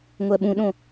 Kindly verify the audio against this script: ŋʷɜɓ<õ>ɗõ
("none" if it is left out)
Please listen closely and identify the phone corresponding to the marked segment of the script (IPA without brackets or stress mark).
ũ